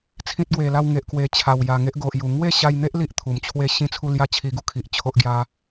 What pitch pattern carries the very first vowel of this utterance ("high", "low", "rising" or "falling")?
high